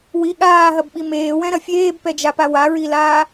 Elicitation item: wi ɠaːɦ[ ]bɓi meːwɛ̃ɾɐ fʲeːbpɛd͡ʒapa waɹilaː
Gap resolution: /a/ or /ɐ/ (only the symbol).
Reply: ɐ